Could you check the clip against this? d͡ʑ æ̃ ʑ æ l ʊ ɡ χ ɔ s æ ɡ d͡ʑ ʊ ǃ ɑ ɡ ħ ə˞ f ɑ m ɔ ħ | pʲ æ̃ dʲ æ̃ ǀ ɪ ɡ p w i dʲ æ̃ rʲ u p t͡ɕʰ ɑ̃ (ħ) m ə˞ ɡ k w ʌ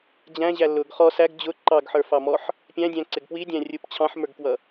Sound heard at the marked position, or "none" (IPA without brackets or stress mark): ħ